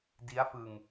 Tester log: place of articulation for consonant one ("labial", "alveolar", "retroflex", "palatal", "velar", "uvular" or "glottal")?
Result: alveolar